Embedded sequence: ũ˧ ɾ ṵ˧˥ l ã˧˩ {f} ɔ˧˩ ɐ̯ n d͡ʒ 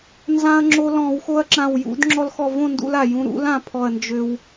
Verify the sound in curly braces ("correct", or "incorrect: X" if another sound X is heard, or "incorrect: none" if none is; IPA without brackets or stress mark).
incorrect: pʰ